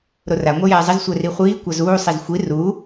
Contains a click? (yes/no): no